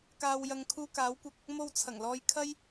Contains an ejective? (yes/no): no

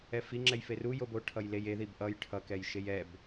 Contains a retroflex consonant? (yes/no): yes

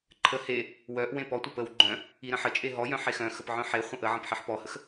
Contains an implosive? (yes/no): no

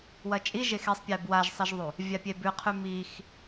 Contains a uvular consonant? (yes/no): yes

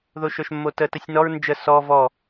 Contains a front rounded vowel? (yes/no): yes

